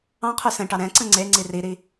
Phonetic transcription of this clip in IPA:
ɑ̃ qʰ ø s ɛ̃ ʈ ɑ ɾ ɛ̃ ǀ ə̃ ŋ͡ǀ e ŋ͡ǀ i r i ɾ i

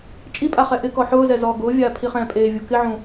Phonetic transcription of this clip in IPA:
t͡ʃʼ i pʼ a χ ɛ ʔ ɪ k ɔ ħ ʊː z ɛ z ɔː ɡ ʊː vʲ aː pʰ i χ ɛ̃ː pʼ eː vʲ u k ɪ ʕ ũ

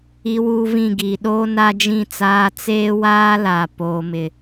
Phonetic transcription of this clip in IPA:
i˦ w uː˦ v ĩ˦˨ ɡ iː˨ ɗ oː˦ n a˦ d͡ʒ ĩ˦˨ t͡s aː˦ t͡s eː˦ w aː˦ l a˨ p oː˦ m ɪ˦

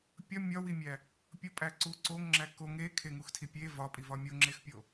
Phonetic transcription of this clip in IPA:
pʲ ɒ mʲ ɒ w i mʲ æ | pʲ o pʼ æ ǀ u ǀ o ŋ ŋ͡ǁ æ k o ŋ e kʰ e ŋ u x tʰ i pʲ e v ɒ pʼ i v ɒ mʲ o ŋ͡ǁ e x pʲ o

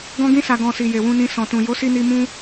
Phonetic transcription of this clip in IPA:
ɡ ɔ̃˧ ɡ ĩ˧ s a˨ ɡ ɔ̃˨ s i˨ j e˨ w ũ˧ n ĩ˧ s ɔ̃˨ t ũ˨ j o˨˦ s i˧ n i˧ m ũ˦

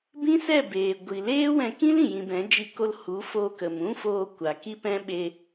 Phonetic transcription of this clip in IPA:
b ĩ˦ s ɛ˦˨ b eː˨ ɡʷ i˨ l eː˦ w ɛ̃˧ k ĩ˦ l ĩ˨ j ĩ˧ b ɛ̃˨˦ d͡ʒ i˧ k o˧ l h u˨˦ f o˧ k ə˨ m ũ˦ f oː˧ kʷ a˨ k i˦ p ɛ̃˦ ɓ e˧

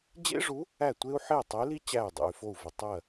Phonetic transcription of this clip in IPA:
d͡ʑ ḛ˥ ʐ u˧˥ | æ˥˨ tʷ e˥ u̯ ħ e˥˨ tˤ ə˧˥ y̯ l i˥ t͡ɕ æ˥˨ y̯ dˤ ḛ˧ y̯ f o˥˨ u̯ v ə˧ tˤ ɜ˥˨

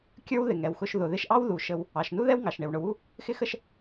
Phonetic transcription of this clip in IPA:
kʲ ə˞˥ w ð ɪ˩ ŋ ɛ˩ w x ʊ˧ ʃ ð ʊ˩ ð ɪ˧ ʃ ʔ ɑ˥ w ð u˩ ʃ ə˧ w | ɑ˩ ʃ n u˥ ð ɛ˥ w ŋ ɑ˩ ʃ ɳ ɪ˩ w ɳ ʊ˩ w u˥ | x ɪ˥ x ə˥ ʃ

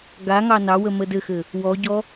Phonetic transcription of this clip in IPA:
ɡ a ŋ ɑ n ɑ w ə m ə d ɘ x ɘ | w ɔ ɟ ɔ

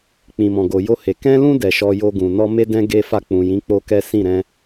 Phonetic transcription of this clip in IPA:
k͡p ĩ˨ m ɔ̃˨ ɡ o˨ j o˧ h e˨ k ɛ̃˧ l ũ˧ d ɛ˨ ʃ ɔ˧ j o˧ ɡ ũ˨ n ɔ˧ m e˦ d ɛ̃˦ ɡ e˦ f a˦˨ k͡p ũ˨ j ĩ˨˦ k͡p o˦ k ɛ˦ s ĩ˦˨ ɾ ɛ̃˧

